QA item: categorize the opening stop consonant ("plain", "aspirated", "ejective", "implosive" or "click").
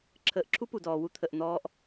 click